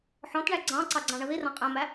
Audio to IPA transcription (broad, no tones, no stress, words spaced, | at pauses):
ħɔ̃tɳæ ɡ͡ǀɑ̃ǀɑ ɡ͡ǀɑ̃ɳʌðirɑ̃ qʼæ̃mæ